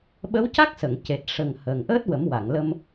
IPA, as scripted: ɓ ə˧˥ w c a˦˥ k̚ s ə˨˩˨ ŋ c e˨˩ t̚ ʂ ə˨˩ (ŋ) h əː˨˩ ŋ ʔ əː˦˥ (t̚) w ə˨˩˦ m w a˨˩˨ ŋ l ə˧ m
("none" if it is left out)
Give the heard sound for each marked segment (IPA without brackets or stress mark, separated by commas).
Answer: ŋ, t̚